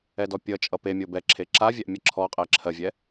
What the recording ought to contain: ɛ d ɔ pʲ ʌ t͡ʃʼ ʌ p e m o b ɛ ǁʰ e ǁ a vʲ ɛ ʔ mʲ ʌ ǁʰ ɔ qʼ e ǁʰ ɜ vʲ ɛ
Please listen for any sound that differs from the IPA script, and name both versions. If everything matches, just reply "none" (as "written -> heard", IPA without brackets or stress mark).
m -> mʲ